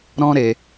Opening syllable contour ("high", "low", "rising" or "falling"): high